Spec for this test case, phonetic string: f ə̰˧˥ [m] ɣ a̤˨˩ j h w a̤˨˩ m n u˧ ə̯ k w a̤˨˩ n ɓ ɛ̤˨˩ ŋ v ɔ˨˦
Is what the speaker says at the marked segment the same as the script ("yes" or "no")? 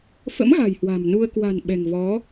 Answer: yes